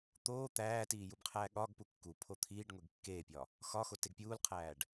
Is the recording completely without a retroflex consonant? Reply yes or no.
no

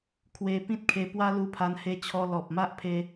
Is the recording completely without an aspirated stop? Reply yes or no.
no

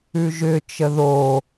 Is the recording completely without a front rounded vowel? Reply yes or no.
no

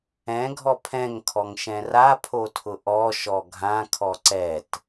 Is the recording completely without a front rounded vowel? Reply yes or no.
yes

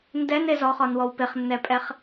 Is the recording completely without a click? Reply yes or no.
yes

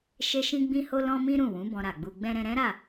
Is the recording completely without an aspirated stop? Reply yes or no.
yes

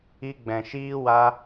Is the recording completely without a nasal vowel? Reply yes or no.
no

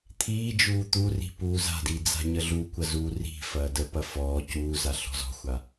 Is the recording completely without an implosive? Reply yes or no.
yes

